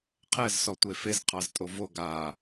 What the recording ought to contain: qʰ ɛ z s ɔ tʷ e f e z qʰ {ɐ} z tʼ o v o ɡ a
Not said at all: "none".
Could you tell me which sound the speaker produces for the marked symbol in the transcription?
ɑ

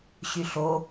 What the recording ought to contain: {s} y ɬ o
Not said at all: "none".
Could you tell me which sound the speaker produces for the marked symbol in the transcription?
ɕ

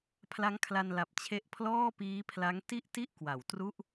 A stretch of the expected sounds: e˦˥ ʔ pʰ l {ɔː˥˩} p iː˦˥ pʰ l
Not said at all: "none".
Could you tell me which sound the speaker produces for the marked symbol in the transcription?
ɔː˥˩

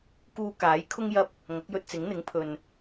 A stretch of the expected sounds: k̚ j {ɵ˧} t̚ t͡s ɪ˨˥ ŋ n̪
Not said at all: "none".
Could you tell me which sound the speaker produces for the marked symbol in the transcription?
ɵ˧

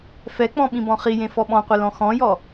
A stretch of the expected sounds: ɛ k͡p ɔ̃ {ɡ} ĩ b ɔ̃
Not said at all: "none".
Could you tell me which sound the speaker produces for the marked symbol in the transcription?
ɓ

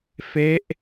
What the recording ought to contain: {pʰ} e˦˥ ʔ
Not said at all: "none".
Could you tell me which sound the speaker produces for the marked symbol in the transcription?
f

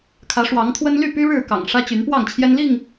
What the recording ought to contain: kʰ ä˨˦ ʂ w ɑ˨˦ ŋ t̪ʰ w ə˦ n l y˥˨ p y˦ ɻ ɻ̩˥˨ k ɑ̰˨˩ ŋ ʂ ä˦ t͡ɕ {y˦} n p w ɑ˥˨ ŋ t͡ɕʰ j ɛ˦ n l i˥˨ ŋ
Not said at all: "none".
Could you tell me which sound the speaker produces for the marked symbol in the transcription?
y˨˦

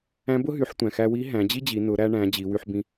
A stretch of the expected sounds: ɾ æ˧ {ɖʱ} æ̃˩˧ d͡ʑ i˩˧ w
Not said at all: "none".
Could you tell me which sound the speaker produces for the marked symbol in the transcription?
ɳ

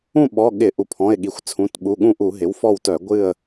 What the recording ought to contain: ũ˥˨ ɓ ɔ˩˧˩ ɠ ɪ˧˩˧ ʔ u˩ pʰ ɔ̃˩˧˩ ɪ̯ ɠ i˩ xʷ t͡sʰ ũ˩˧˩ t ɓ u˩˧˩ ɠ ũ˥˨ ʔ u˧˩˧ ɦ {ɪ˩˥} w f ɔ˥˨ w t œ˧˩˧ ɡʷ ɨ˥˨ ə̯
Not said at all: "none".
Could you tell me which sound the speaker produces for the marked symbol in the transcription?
ɪ˩˥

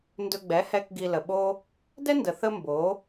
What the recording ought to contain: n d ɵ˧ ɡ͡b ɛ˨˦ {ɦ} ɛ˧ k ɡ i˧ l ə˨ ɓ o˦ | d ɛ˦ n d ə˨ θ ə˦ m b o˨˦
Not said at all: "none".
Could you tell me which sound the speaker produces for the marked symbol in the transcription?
h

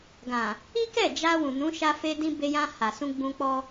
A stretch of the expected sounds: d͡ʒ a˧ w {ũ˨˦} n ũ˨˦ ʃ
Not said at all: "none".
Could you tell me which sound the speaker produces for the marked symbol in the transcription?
ũ˨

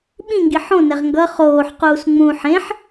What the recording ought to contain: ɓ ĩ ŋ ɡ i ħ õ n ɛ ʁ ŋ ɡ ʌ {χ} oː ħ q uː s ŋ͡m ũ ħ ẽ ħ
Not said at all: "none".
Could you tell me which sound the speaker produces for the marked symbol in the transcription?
χ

